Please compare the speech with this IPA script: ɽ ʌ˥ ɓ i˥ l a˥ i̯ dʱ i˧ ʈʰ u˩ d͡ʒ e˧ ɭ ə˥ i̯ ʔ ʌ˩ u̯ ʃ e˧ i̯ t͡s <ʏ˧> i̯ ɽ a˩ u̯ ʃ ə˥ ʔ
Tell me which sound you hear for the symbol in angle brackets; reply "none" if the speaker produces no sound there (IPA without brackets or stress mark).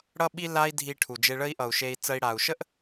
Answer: ə˧